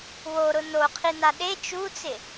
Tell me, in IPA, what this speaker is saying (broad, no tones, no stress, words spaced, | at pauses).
woɾʊ noqʰina ɗe t͡ʃut͡sɪ